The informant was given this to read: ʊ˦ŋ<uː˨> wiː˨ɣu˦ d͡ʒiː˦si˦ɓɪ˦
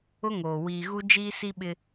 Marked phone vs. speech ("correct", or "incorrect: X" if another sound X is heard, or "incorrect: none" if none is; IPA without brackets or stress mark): incorrect: oː˨